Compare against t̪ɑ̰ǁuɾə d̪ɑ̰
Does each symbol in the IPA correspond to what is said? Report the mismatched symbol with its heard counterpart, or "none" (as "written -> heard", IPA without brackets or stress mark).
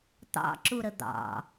none